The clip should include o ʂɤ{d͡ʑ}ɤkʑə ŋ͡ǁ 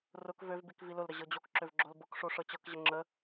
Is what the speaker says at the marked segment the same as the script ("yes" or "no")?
no